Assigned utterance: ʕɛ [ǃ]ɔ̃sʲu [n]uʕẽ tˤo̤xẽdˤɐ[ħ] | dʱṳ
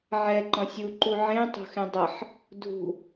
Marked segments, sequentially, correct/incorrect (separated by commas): correct, incorrect, correct